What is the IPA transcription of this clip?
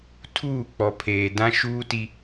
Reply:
tʰ uː˦˨ k͡p ɔ˨ pʰ eː˨ d ã˦ ʃ uː˦ t i˦

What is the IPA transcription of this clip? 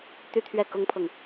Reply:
t̪ y˥˧ t̪ʰ ɥ ɛ˥˩ k ʊ˥ ŋ pʰ ɤ˨ ŋ

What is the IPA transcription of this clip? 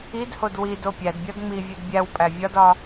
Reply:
i d h o d w i d o pʲ æ d bʲ ɒ d ŋ͡m i vʲ u d bʲ æ w pʼ æ vʲ ɒ d ɒ

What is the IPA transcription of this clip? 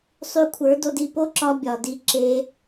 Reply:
sˤ y˧ kʷʰ ə˞˨˦ d o˧ d i˧ p o˦ ǁ ɒ˧ bʲ ɒ˨ d i˧ ǁ e˧

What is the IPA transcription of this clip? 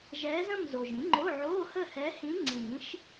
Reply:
ʒ ɛ˧˥ z ə̃˥˧ m z o˨ ʒ ĩ˩˥ ŋ͡ǃ o˧˥˧ ʕ o˧˥˧ h ə˥˧ h ɛ˧˥ h ĩ˧˥ ŋ͡ǀ ĩ˨˩˦ ʃ

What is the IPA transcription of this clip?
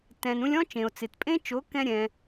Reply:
t ɛ̃˨ n ũ˧ lʲ ɔ̃˦ t͡ʃ ẽ˨ o̯ t͡s ɪ˨ t pʼ ẽ˦ t͡ʃ o˨˦ k ɛ̃˦ ɾʲ ɛ̃˦

